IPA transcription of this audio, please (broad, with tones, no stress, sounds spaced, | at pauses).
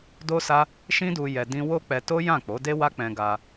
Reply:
d o˦ s a˦ | ʃ ĩ˦ d u˧ j ɛ˧ d ĩ˦ w o˦ k͡p ɛ˧ t o˦ j ã˦˨ k͡p o˨˦ d e˦ w a˦ k͡p ɛ̃˧ ɡ a˧